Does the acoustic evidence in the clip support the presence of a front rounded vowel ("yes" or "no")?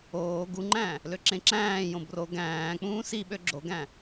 yes